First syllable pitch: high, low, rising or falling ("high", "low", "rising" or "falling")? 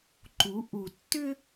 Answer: rising